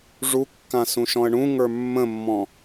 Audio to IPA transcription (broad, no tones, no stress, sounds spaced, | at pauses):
ʐ u kː ã s ũ ʃ ɔ̃ ə̯ ɳ ũ ŋ ə˞ mː ə̃ mː ɔ̃